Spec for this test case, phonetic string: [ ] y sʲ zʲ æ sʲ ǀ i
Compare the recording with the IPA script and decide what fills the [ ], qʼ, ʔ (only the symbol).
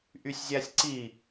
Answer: ʔ